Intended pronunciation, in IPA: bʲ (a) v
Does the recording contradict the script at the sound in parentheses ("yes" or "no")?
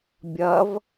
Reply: yes